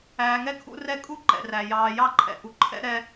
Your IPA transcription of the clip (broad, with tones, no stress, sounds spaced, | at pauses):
æː˨ ŋ ɛ˦ kʰ ṵ˦ r ɛ˦ kʼ u˥ ǃ ɛ̰˩ r æ˩ j ɑː˨ j ɑ˦ ǃʰ ɛ̰˨ ʔ u˨ ǃʰ ɛ̰˥ ɾ ɛ˦